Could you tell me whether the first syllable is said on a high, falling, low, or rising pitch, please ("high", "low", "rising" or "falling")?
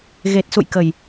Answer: low